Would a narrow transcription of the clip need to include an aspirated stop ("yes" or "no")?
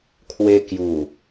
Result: yes